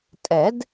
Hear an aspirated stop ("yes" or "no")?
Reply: no